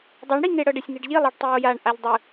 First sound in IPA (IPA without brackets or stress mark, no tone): dˤ